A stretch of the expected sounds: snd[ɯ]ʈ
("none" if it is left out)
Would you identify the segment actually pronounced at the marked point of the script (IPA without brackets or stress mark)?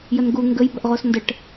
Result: ə